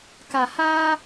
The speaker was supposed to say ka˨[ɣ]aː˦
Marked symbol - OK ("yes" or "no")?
no